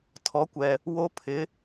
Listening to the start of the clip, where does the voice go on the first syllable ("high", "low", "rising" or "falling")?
rising